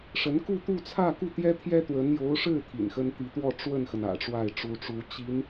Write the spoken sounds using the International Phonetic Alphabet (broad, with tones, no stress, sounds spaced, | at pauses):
ʂ ə˧˥ n k u˥˧ t̪ u˥˧ t͡sʰ ä˥˧ k u˥˩ t̪ j ɛ˥ t̪ʰ j ɛ˥ t̪ w ə˧˥ n j o˧˥ ʊ̯ ʂ ɻ̩˥˩ t̪ʰ ḭ˨˩ n x ə˥ n t̪ i˧˥ t̪ w ɔ˥˧ ʈ͡ʂ w ə˥˩ n x ə˩ n ä̰˨˩ ʈ͡ʂ w a˥˩ ɪ̯ ʈ͡ʂ u˧˥ ʈ͡ʂ u˧˥ t͡ɕ i˧˥ n